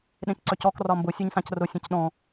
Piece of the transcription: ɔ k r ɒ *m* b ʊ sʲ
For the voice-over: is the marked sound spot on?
yes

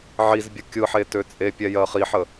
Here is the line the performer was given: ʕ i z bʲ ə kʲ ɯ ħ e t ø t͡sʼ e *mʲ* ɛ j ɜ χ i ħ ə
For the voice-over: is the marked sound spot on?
no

